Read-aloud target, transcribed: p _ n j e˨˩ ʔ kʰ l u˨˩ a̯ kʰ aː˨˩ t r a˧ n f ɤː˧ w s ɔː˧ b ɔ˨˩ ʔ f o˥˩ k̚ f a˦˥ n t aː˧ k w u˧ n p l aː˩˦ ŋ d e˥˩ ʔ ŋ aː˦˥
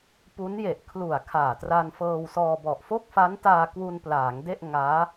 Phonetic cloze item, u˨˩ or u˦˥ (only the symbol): u˦˥